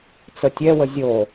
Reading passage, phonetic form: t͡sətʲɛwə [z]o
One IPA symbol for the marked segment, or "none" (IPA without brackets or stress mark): zʲ